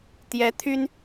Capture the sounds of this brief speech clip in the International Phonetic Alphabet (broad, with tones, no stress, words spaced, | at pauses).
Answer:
t̪jɛ˧˥t̪ʰy˥n